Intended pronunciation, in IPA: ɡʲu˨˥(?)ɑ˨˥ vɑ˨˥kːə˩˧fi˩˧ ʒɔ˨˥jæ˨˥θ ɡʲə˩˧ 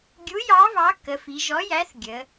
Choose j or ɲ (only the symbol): j